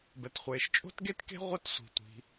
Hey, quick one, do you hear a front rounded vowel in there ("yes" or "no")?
no